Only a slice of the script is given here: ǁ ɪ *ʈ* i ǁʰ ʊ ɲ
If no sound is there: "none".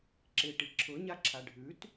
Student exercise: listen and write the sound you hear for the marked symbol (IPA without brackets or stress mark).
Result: ʈ